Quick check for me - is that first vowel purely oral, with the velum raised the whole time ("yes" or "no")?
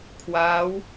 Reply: yes